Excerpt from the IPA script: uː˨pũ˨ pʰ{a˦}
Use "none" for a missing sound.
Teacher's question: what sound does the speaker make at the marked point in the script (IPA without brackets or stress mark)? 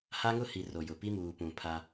a˦